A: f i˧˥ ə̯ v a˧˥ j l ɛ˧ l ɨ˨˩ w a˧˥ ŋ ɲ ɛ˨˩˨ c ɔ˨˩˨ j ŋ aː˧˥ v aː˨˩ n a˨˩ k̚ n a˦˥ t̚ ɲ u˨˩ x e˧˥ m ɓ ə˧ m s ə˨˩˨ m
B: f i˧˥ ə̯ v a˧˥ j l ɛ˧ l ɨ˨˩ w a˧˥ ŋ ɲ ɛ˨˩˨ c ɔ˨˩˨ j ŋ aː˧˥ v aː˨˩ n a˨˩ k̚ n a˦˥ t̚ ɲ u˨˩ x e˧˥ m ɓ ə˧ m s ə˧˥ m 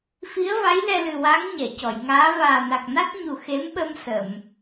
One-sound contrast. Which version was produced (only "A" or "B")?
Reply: A